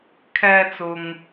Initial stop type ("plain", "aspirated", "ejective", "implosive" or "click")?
aspirated